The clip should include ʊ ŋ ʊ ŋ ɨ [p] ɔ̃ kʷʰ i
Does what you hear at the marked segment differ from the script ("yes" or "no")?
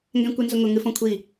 yes